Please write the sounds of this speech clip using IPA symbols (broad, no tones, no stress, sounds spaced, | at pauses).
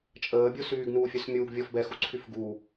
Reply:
t͡ʃʼ əː bʲ o s yː ɡ n uː fʲ œ s mʲ uː ɡ vʲ ɔ f b ɛ x u ǀʰ y f ɡ u